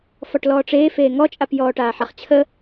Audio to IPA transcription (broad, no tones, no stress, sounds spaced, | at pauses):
f ɔ ʈ l ɔː ʈ͡ʂ eː f eː ŋ ɔ t͡ʃʼ a p j ɔː ʈ aː ħ a χ t͡ɕʰ ə